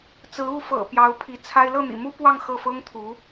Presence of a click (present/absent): absent